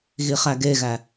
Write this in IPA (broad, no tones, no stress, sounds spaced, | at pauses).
ɣ i χ æ ɡ e ɣ æ